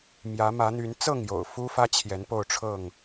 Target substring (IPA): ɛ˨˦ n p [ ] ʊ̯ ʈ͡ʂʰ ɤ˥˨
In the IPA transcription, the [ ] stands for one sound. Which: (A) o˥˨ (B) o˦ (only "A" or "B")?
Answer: A